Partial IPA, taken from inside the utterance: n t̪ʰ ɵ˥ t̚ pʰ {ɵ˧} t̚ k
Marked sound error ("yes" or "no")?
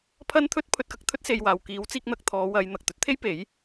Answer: no